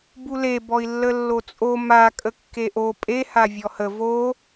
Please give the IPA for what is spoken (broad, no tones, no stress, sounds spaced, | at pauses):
b u l e b ɔ i̯ lː ə lː o t͡sʼ o m a kʼ ə kː e ʔ o pʼ e h a vʲ ɔ h ə v o